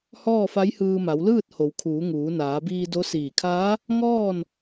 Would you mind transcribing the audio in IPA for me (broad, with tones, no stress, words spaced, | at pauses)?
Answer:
hɔː˥˨fa˧˥jhɯː˧ma˩˧w lɯː˥˨t̚ho˩˧w kʰuː˩˧ŋuː˩˧naː˩˧biː˧ do˧˥siː˧˩ kʰaː˧˥ | ŋɔː˥˨n